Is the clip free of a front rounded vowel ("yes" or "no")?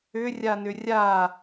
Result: no